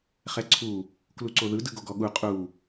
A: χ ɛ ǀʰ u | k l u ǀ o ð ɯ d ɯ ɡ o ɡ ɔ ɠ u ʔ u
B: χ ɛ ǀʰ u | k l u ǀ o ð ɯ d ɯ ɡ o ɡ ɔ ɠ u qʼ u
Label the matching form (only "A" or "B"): B